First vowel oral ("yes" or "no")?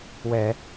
yes